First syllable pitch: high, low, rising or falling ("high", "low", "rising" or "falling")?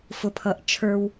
low